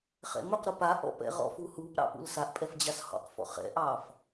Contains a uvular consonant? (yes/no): yes